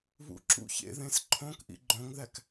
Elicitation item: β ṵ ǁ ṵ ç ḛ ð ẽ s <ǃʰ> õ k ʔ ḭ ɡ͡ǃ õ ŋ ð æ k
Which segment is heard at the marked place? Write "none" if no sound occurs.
ǃʰ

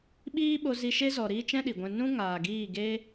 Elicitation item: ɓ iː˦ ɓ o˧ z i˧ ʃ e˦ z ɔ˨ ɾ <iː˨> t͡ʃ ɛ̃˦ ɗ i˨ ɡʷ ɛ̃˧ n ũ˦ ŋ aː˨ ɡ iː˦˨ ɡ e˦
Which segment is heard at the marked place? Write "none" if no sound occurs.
iː˦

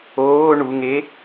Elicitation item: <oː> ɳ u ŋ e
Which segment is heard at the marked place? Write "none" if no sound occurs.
oː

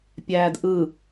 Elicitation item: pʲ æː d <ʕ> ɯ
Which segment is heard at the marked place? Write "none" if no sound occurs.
ʔ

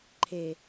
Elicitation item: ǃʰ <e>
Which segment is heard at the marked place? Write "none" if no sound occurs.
e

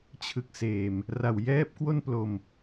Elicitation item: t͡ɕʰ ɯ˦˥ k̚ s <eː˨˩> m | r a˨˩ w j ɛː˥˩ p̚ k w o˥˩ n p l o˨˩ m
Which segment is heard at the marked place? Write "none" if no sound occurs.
eː˨˩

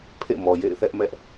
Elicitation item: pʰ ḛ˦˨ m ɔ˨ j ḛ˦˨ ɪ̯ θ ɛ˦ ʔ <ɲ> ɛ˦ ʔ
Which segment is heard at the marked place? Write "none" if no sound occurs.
m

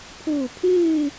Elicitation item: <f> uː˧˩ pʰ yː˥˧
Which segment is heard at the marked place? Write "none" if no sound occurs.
pʰ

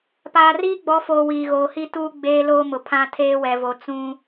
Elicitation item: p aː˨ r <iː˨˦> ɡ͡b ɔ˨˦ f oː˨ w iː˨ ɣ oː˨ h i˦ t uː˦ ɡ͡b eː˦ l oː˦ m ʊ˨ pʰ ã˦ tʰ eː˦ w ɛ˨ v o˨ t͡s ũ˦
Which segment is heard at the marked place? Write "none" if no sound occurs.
iː˦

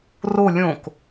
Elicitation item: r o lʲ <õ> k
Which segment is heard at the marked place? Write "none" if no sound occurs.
õ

